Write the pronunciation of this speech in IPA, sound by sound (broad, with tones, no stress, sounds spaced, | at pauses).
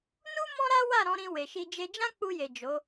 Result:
n u˦ m ɔ̃˦ ɾ a˦ w a˦˨ ɾ ɔ̃˨˦ ɾ ĩ˧ w e˨ ʃ i˧ d͡ʒ e˦ d͡ʒ ã˦ k͡p u˧ j e˨ d͡ʒ o˨˦